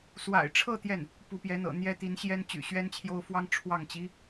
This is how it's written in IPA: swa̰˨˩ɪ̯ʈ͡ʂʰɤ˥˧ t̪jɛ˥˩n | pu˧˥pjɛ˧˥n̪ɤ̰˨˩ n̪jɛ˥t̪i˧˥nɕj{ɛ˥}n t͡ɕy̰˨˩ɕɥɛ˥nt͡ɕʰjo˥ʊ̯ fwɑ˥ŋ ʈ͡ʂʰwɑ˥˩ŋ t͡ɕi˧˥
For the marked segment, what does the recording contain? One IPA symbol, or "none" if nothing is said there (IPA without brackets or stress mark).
ɛ˥